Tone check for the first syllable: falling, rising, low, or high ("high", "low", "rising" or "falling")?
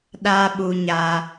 high